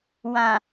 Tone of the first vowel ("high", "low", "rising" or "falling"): low